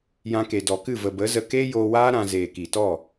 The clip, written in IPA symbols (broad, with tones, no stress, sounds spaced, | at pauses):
j ã˧ k e˨ d ɔ˨ k ɨ˦˨ v ə˨ b ə˨˦ z ə˧ k eː˦ j oː˧ w aː˦ ɾ ã˧ z eː˨ k i˨ t ɔ˦˨